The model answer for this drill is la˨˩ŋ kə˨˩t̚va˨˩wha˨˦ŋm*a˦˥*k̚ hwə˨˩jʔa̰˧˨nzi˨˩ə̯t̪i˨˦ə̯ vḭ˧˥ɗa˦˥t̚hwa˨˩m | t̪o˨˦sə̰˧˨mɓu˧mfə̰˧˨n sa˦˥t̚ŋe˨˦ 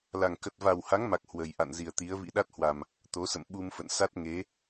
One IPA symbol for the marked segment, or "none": a˨˩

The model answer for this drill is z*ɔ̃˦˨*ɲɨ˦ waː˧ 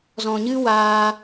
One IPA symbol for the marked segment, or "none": ɔ̃˨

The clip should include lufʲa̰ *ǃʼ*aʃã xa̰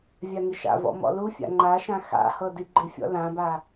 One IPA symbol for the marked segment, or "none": ŋ͡ǃ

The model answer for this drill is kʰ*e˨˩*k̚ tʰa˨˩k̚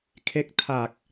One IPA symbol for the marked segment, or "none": e˥˩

